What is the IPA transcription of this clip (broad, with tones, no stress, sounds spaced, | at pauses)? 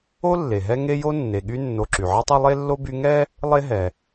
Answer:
o˥ lː e˩ ɦ ɛ˦ ŋ e˥ j o˥ nː e˩ ɠ y˦ nː o˨ ǁ y˩ ʕ e˥ tˤ ɛ˥ lˠ e˥ lː o˥ b y˦ ŋ ɛ˥ | lˠ e˦ ɦ ɛ˩